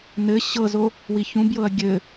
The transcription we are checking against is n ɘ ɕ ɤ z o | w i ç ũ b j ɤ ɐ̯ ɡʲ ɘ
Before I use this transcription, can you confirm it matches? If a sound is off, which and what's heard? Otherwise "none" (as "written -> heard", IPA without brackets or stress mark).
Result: none